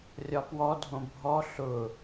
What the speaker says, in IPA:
rʲɒpwɔdʱõ bʱɔ ɬʊ

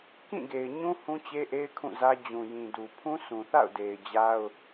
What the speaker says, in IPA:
kĩ˦˨ɡe˨ɪ̯ɲũ˦ hũ˦t͡ɕe˦ʔe˦ɪ̯ kʰũ˦˨zä˦ d͡ʑũ˨jĩ˨du˨ pʰũ˦sʰũ˨θa̰˦˨ʊ̯de˨ɪ̯ d͡ʑa˦ʊ̯

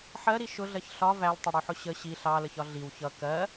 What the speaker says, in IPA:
ħɜɾi ʃʊɮɜç ɬɒ væltˤʊɽuħʊ ɕə ɕi ɬɑləçɒ ɮiw çʌ kɜ

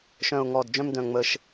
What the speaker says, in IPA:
ʃœ̃˨˩ʊ̯ŋɔ˨˩d d͡ʒœ̃˧mdœ̃˨˩ŋ͡mə˨˩ʃ

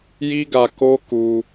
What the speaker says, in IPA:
ji˦ɡa˧ko˦ ku˧

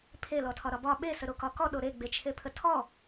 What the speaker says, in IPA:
pʰe lɔtʰɒɾɒbɒ ɓe səɾokɒkɔ ɗoɾe ɡ͡bet͡ʃʰepʰətʰɔ

